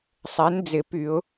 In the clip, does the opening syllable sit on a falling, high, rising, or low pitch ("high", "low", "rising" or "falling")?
rising